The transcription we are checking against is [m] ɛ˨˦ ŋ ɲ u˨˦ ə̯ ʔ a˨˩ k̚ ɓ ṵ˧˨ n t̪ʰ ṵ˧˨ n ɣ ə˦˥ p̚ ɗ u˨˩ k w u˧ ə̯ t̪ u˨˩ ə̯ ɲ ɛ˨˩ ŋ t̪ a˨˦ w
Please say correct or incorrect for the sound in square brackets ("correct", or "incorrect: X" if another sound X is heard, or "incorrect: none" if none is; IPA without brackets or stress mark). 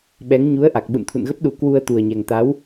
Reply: incorrect: ɓ